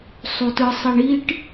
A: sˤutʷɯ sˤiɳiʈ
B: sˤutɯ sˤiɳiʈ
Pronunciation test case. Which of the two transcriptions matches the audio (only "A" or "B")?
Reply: B